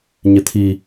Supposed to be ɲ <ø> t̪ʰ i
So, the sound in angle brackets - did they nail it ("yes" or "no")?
no